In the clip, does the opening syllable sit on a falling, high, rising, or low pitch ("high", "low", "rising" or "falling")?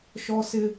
high